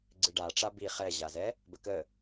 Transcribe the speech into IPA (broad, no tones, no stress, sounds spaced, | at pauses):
ɡ͡ǀ ɨ ɖ a ʈ͡ʂ a b i χ ɛ ʑ a z ɛ | b ə k ə